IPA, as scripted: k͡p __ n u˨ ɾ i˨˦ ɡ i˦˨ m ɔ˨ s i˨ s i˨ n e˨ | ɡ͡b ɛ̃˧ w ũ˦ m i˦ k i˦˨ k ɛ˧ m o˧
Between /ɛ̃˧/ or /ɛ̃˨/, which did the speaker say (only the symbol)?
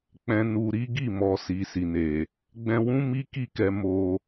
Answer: ɛ̃˨